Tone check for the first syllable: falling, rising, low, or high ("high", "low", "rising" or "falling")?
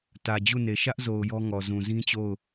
low